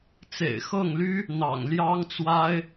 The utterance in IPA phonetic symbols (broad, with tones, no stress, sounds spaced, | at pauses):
t͡s ḛ˨˩ ɪ̯ x ɤ˥˩ ŋ l y˥ | n̪ ɑ̰˨˩ ŋ l j ɑ˥ ŋ t͡s w a˥ ɪ̯